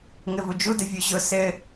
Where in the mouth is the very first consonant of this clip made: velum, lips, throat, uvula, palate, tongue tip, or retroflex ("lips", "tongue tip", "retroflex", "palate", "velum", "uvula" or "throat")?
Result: velum